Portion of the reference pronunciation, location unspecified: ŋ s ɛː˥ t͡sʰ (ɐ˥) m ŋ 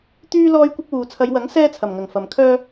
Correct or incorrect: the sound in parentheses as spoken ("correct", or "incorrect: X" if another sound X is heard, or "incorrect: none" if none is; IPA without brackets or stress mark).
incorrect: ɐ˨˩